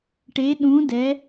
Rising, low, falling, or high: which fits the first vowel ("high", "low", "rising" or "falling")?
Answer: rising